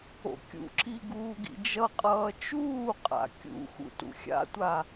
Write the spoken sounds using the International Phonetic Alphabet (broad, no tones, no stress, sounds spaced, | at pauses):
o̰ kʲ ṵ ǁ i ɡ uː ɡ ḭ d͡ʒ ʌ qʼ ʌː t͡ʃ uː qʼ a̰ kʲ ṵ x ṵ t ṵ xʲ a̰ tʷ a